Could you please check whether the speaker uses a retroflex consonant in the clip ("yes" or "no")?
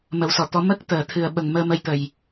no